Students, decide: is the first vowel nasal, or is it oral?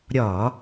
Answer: oral